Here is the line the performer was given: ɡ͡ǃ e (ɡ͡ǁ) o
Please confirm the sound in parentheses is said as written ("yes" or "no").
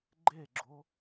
yes